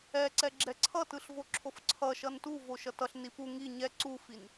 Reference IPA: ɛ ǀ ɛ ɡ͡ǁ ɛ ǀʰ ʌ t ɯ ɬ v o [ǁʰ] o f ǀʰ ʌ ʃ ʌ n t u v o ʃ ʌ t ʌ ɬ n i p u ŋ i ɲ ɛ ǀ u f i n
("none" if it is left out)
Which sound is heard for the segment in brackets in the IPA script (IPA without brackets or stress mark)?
ǁʰ